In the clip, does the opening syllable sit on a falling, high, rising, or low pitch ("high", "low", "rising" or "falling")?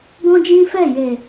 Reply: high